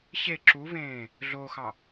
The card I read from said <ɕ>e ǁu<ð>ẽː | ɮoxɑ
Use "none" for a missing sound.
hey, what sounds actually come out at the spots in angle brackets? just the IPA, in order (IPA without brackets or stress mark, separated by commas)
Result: ɕ, v